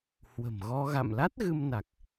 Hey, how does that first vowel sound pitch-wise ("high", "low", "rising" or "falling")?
low